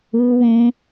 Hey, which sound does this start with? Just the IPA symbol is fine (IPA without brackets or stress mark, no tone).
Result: u